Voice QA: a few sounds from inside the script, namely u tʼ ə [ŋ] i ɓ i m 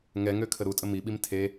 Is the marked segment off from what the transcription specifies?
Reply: yes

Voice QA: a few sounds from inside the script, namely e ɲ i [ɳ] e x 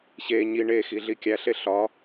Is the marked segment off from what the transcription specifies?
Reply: no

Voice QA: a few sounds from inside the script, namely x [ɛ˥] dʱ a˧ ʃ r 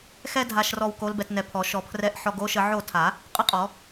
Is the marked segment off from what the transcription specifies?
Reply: no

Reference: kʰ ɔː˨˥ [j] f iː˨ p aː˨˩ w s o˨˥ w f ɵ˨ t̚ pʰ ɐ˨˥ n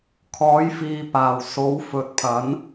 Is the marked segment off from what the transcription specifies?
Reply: no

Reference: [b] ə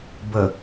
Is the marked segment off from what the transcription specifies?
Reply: no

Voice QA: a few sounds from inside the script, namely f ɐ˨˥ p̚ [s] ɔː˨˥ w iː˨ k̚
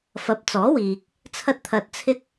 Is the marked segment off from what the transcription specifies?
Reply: yes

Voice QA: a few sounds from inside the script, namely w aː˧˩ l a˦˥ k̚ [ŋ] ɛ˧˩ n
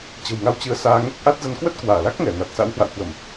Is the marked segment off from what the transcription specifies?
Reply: no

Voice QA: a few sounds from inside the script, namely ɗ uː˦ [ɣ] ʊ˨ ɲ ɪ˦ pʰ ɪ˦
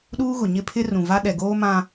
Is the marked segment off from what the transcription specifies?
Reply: no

